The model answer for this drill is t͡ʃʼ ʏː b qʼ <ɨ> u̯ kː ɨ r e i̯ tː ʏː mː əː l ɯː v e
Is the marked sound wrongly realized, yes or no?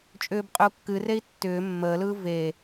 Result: yes